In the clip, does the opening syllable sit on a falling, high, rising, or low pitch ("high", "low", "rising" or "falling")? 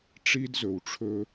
high